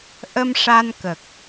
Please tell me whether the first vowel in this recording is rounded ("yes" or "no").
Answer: no